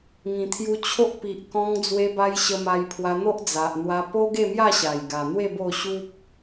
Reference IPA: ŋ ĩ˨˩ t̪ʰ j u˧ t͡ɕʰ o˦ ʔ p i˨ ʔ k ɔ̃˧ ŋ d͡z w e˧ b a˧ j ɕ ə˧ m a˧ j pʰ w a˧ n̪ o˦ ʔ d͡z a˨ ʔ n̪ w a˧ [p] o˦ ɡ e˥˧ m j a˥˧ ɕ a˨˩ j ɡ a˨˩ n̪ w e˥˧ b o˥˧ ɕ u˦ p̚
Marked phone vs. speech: correct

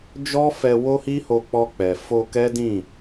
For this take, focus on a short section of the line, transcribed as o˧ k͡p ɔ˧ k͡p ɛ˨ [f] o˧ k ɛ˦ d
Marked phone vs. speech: correct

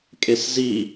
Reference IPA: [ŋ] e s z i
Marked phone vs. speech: incorrect: kʼ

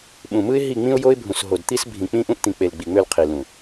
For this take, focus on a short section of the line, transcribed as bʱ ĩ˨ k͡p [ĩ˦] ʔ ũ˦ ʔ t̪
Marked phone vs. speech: correct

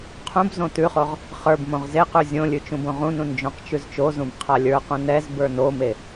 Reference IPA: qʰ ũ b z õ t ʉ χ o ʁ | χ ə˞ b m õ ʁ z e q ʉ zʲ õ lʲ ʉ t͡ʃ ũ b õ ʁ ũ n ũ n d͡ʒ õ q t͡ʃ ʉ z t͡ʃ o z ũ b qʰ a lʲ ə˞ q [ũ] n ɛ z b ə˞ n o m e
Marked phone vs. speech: correct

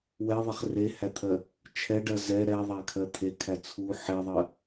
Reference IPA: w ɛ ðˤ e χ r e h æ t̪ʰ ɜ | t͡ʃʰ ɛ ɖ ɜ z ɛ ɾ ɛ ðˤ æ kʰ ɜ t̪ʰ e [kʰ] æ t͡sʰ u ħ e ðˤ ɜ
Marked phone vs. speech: correct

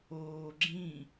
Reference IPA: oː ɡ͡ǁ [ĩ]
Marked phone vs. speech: correct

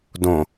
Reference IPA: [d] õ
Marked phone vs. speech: correct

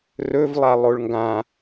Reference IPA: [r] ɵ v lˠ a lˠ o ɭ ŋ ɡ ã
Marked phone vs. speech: correct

